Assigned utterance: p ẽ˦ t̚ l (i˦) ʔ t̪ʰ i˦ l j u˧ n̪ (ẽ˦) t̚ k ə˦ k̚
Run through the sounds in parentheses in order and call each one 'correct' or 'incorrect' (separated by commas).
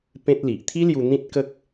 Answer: incorrect, incorrect